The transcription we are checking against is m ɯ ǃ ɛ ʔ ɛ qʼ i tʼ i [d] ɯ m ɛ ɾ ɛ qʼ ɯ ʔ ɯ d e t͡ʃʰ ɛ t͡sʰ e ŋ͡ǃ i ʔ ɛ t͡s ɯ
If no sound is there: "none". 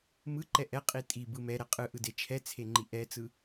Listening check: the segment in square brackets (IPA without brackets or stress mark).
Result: b